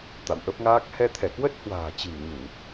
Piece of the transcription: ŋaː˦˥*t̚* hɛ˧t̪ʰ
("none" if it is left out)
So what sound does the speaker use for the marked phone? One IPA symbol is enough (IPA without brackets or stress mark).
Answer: k̚